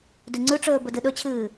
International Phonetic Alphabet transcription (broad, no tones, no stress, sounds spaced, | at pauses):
d ʉ ŋ͡ǀ ʉ ʈ͡ʂ ɵː b ɵ d ɨ ɗ ɵ t͡ɕʰ ɨː